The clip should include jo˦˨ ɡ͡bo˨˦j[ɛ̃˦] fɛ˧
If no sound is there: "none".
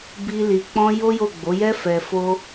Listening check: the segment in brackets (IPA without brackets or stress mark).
ɛ˦